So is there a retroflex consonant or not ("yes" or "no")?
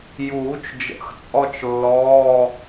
no